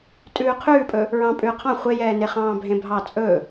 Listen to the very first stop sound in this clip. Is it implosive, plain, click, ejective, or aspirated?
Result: ejective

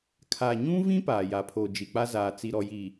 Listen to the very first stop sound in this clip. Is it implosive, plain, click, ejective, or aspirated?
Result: aspirated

